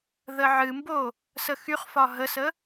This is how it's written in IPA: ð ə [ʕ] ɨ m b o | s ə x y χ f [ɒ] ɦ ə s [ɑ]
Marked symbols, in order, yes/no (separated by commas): yes, yes, no